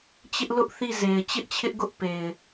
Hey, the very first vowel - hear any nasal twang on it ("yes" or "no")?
no